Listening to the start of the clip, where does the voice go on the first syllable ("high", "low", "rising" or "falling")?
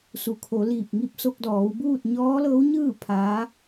low